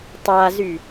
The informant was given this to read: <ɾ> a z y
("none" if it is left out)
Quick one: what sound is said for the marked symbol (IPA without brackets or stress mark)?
tˤ